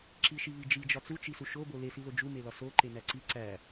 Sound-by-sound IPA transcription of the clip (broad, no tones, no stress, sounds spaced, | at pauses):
ǁ i ʃ i β i d͡ʒ i d͡ʒ ɒ t͡s u t͡ʃ i s u ʃ o b o l e s i l o d͡ʒ u m e l ɒ s o ǃ e n æ ǀ i ǀ æ